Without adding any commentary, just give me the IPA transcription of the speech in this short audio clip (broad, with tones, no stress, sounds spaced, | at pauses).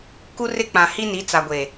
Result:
k u˦ r ɪ˦ k͡p ã˨ h i˦ n i˨˦ t͡s a˨ ɡʷ eː˨